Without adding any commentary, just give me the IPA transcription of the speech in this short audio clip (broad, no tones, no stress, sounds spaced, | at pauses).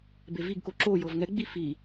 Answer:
b e v i ɡ k o ǁ o j ɤ v ŋ ɛ ɡ͡b i f i